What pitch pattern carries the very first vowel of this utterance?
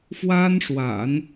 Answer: high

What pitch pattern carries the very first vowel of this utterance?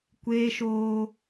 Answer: high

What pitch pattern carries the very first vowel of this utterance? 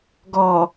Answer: low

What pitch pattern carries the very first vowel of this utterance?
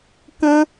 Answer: high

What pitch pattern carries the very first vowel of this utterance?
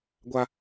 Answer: high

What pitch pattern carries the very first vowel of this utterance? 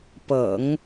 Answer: low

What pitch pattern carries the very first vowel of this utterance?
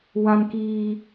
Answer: high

